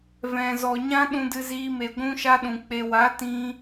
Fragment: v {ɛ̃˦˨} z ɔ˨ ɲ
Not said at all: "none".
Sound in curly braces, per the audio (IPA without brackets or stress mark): ɛ̃˨